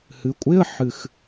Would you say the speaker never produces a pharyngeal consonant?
no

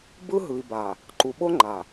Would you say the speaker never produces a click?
no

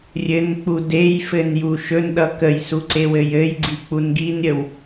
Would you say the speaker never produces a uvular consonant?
yes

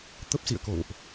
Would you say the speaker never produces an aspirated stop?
yes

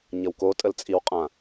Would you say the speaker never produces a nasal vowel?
no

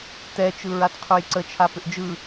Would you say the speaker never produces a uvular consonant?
no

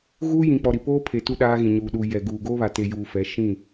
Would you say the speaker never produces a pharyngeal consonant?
yes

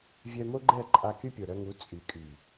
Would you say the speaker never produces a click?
no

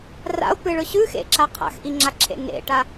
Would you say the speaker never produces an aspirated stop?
no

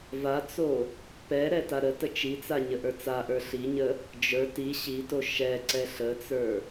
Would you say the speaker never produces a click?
no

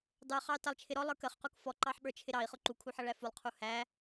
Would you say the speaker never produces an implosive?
no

